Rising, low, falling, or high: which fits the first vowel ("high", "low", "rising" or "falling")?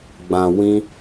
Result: low